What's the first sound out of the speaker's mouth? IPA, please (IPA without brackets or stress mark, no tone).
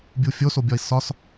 bʲ